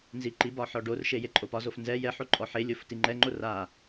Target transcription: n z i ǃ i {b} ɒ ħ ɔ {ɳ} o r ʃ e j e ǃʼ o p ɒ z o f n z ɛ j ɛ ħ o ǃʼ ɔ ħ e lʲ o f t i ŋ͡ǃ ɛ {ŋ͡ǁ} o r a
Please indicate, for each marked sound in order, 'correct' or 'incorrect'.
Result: correct, incorrect: ɖ, incorrect: ŋ͡ǃ

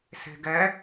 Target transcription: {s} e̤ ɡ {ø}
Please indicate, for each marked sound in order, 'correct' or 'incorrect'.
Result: correct, incorrect: ɛ

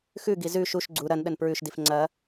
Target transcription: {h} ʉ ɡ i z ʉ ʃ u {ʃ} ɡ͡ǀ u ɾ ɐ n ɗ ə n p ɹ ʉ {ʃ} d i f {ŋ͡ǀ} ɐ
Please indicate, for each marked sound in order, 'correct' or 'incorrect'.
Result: incorrect: x, correct, correct, correct

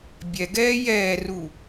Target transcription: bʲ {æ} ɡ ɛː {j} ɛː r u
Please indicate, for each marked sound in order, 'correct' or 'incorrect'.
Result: incorrect: ɛ, correct

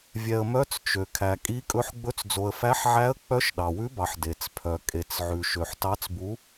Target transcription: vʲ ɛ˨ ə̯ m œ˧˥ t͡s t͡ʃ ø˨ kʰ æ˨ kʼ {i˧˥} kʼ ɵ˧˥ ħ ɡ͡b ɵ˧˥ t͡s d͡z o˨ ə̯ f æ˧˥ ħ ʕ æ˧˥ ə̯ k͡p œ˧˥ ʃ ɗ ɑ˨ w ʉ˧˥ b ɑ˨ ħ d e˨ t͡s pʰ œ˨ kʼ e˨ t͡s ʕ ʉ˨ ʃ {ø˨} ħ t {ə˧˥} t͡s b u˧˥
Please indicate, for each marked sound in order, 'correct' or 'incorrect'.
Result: correct, correct, incorrect: ɑ˧˥

